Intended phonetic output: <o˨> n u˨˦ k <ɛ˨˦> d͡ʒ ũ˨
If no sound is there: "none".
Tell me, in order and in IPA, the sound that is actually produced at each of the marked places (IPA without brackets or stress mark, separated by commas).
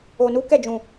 o˨, ɛ˦˨